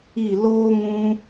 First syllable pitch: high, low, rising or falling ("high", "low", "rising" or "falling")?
falling